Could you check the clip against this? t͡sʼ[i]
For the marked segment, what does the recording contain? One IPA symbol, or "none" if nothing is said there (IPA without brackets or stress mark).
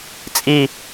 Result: i